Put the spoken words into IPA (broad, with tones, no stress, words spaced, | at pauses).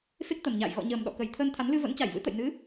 fe˦˥k̚t̪ə˨˩mɲa̰ː˧˨j ɣɔ̰˧˨ɲəː˨˩m ɗɔ̰˧˨kə˨˩j t̪ʰəː˧nt̪ʰa˨˦nlɨ˧ və̰˧˥nt͡ɕa˧˩jvɨ̰˧˥t̪ə̰˧˨j nɨ˨˦